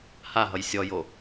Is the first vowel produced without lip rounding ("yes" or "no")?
yes